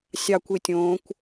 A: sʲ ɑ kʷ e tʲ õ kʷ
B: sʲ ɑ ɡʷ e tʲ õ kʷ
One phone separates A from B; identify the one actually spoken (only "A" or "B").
A